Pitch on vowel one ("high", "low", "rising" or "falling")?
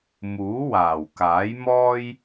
rising